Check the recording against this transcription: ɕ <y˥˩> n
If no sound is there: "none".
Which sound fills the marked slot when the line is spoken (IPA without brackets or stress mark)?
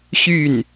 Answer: y˥˩